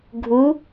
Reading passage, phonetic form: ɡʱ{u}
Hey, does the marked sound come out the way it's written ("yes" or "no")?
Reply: yes